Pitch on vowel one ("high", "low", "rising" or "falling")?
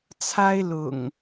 high